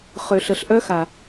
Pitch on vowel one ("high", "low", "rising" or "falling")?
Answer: low